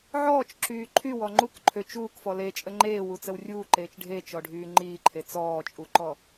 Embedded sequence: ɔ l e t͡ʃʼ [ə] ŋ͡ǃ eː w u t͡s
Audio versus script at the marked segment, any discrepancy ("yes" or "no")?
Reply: no